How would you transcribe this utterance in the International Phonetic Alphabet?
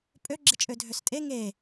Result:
pʼ ø ɡ͡ǁ ɪ t͡ʃʼ ø dʱ ø s tʼ e ŋ e

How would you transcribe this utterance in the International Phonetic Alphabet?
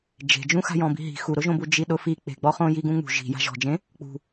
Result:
d͡ʒ e̤ d͡ʒ ũ x a̤ j ɔ̃ b i̤ ɦ i̤ x u ɾ ʊ ʒ õ b u d͡ʒ i ɗ ʊ f i k͡p e̤ ɡ͡b ɔ χ õ j i ɡ ũ ŋ͡m ṳ ʒ i̤ j a̤ ʒ ɔ̤ d͡ʒ ẽ | k͡p ṳ

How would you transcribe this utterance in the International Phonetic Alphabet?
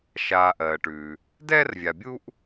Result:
ʃ aː˨ ʔ ɜː˩ ʈ ʉː˩ | d ɛː˥ r vʲ a˨ bʲ uː˥ ʔ

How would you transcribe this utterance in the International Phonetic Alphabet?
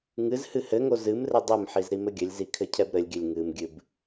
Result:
ŋ ɨ z h ɨ h ɘ ŋ o z ɨ m r ɘ dˤ ɘ m ħ i z ɾ i m ɘ ɡʲ ɘ lʲ z i kʰ ɘ cʰ ɛ b ɾ ɘ lʲ ɡʲ ɘ lʲ ŋ ɨ m ɡʲ ɨ b

